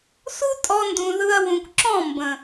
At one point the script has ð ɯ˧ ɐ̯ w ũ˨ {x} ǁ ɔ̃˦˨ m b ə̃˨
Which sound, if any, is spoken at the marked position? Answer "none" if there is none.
k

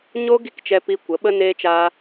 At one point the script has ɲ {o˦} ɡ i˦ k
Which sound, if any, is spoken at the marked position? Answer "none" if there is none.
o˦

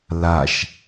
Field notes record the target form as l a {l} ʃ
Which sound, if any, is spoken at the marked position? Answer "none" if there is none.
none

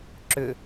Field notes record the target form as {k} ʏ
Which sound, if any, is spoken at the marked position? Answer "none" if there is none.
ǁ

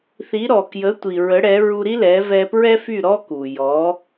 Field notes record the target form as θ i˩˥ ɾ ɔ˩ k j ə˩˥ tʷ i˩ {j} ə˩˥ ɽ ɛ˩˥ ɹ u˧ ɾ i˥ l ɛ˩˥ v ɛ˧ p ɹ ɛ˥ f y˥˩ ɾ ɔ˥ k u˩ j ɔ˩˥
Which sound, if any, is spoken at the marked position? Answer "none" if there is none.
ɹ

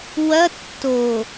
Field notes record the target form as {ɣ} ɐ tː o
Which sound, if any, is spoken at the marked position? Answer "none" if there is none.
w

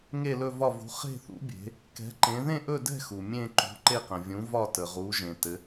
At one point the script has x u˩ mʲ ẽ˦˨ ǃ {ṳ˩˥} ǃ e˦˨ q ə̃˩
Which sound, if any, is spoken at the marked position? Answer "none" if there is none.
ṳ˩˥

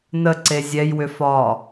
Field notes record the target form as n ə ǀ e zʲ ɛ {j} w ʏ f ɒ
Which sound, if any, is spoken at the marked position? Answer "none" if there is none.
j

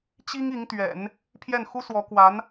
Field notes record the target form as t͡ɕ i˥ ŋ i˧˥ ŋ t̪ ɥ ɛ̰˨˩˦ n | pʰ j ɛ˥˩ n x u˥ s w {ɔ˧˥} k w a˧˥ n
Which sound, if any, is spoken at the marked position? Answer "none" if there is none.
ɔ˧˥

